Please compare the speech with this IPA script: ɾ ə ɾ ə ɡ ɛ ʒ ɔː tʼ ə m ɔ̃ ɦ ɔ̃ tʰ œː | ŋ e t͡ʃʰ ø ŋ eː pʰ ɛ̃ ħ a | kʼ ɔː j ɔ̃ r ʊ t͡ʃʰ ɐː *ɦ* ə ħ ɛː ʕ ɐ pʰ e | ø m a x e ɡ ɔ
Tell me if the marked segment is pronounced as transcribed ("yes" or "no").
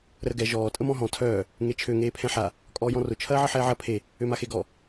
no